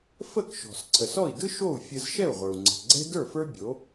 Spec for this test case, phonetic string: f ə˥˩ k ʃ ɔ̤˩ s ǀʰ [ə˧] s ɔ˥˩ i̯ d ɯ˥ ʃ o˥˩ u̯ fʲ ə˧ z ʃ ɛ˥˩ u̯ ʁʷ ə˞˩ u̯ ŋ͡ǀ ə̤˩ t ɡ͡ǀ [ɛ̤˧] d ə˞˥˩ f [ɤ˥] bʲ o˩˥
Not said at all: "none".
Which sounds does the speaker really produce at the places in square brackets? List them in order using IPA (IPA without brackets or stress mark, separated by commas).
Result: ə˩, ɛ̤˥, ə˞˥